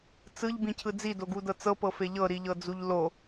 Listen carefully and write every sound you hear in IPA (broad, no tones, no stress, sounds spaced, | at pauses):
t͡s ɯ ʎ b ĩ cʰ ɯ d͡z i d o ɡ u d ɤ t͡s ɤ p ɤ f e ʎ ɤ ɾ i ʎ ɤ d͡z u ʎ l o